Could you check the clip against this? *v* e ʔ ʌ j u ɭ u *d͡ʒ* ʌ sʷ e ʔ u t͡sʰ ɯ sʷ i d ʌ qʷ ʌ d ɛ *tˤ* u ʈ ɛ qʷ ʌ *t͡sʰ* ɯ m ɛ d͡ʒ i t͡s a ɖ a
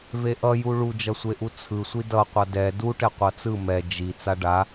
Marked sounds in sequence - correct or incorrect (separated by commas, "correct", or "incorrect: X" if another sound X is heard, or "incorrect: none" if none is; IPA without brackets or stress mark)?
correct, correct, incorrect: d, incorrect: t͡s